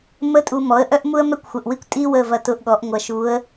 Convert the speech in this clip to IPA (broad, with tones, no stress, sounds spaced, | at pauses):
m ə˧ tʼ u˧ m ɔ˩˥ ə̯ ʔ œ˥ ʔ m u˥ ə̯ m ɛ˥ kʷ xʷ ə˨˩ ʔ w i˥ kʷ tʼ i˥ w ə˥˨ v ɐ˧ t ʊ˧ ʔ ɠ ɔ˩˥ ʔ ŋʷ ɐ˧ ʃ u˧˥ ə̯